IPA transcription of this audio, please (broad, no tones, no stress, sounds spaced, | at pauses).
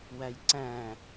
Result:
w æ j ǀ æ̃